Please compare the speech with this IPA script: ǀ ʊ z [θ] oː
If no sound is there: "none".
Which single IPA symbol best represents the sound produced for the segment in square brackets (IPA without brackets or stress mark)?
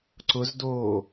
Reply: d